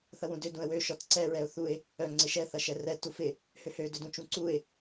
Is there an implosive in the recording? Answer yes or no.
no